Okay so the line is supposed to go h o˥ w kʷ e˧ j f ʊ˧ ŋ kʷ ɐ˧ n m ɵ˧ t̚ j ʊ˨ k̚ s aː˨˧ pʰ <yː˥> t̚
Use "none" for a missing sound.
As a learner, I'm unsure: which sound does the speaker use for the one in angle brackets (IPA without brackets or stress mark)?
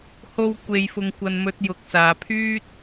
yː˥